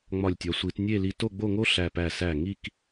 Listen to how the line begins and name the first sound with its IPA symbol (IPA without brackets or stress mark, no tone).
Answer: ŋ͡m